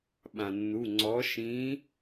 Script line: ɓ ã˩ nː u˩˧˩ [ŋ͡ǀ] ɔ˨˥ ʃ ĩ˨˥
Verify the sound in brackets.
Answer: correct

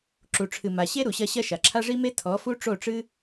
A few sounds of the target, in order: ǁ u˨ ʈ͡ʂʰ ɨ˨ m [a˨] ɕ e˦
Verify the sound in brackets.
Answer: correct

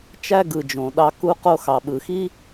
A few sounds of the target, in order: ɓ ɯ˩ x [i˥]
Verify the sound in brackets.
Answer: correct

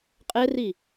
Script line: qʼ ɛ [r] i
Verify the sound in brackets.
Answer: correct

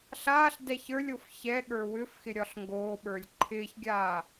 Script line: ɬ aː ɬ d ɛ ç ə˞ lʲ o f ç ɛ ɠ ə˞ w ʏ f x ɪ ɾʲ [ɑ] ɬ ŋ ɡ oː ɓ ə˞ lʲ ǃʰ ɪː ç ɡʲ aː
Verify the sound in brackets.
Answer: incorrect: ɒ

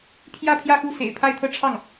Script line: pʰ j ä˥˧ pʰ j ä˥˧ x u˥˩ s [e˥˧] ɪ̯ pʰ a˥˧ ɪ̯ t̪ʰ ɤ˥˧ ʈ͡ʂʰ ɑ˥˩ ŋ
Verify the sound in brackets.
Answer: incorrect: ḛ˨˩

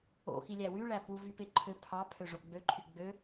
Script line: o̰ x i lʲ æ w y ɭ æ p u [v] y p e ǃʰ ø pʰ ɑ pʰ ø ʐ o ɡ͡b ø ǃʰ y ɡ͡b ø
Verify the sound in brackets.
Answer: correct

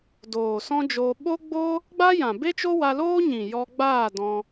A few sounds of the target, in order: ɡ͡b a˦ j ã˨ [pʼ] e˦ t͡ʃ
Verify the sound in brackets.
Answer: incorrect: b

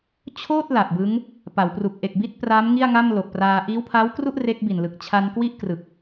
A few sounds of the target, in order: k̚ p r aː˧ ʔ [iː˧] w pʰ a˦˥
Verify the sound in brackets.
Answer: incorrect: iː˦˥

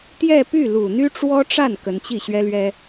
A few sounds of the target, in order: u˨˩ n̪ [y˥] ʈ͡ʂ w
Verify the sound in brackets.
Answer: correct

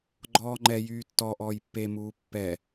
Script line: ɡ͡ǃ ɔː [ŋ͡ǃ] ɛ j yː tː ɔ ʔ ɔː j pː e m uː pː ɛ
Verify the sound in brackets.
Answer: correct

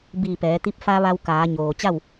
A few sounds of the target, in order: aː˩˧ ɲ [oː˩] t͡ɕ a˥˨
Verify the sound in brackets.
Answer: correct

